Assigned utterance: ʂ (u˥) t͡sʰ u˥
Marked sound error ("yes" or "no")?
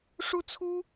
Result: no